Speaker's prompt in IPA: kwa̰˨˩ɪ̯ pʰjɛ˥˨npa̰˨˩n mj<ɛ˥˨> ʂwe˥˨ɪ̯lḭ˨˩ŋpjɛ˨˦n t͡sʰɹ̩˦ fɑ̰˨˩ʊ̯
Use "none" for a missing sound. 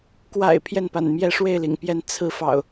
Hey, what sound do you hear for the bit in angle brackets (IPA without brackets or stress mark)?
ɛ˥˨